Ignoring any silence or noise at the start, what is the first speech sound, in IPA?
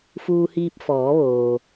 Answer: f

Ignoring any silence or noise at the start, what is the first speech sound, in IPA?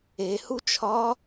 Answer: e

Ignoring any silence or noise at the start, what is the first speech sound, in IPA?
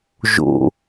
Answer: ʒ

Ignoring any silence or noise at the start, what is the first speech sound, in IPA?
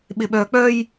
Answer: ɓ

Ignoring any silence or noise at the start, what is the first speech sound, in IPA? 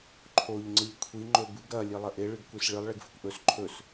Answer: ǃʰ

